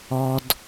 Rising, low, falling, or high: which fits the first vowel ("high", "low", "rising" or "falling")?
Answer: low